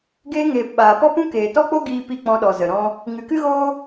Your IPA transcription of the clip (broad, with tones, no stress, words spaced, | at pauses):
ɡeː˧ŋeː˨p ɓaː˨pɔ˦pũ˦ keː˨tɔ˦k͡po˦ɡiː˧ pi˦˨k͡pɔ̃˧ɗɔ˨ zə˨ɾɔ̃˦ | ŋɨ˨kɨ˦ɣoː˦